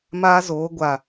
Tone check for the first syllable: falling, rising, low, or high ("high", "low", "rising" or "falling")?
high